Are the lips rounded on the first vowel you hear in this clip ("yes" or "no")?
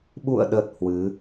yes